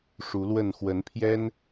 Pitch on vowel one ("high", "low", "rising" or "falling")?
rising